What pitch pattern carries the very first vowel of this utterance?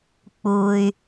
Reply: low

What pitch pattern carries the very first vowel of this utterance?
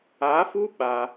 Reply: rising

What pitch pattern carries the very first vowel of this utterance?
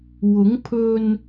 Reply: rising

